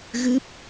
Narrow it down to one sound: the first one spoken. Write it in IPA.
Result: ɣ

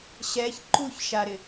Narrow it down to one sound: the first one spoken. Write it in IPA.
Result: ɕ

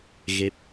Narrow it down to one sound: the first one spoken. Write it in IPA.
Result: ɣ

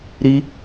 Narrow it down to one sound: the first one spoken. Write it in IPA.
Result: ɾ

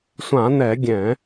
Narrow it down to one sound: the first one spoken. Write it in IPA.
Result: sʷ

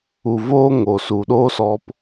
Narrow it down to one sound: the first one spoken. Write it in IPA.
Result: u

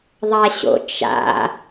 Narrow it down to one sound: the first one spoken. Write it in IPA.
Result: ðˤ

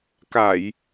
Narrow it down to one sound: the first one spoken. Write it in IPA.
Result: k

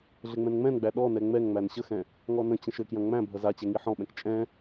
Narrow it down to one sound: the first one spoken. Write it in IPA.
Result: ɮ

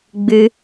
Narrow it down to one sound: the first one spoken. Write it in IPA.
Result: ɡ͡b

